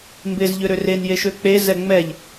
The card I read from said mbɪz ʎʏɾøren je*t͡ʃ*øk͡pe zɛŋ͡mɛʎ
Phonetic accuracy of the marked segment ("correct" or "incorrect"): incorrect